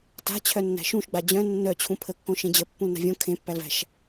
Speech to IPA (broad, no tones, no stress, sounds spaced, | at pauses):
t a̤ t͡ɕʰ œ nː æ̤ ʃ ũ ʃ ɡ͡b a d͡ʑ œ̃ nː œ t͡ɕʰ ũ pʰ ə kː õ ʃ ẽ d͡ʑ ə pː ũ l n a̤ vʲ õ kʰ ẽ pː æ l v æ̤ ʃ